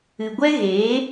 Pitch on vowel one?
low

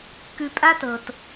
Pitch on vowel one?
low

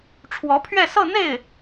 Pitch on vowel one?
rising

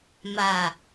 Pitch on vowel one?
low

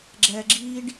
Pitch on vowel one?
low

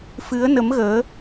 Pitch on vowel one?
rising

